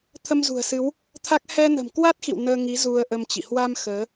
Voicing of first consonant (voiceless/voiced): voiceless